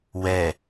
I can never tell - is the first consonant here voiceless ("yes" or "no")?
no